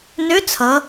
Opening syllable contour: rising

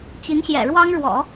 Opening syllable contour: rising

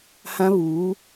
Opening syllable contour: high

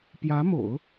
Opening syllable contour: rising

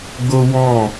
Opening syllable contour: high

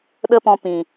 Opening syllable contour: high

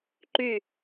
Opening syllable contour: falling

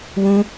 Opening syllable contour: high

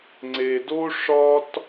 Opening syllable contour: low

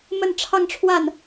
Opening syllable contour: falling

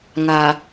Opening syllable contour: low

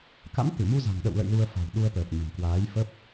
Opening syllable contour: rising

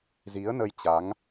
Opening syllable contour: rising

